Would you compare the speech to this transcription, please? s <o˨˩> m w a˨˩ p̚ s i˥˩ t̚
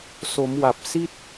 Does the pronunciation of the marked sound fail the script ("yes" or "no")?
yes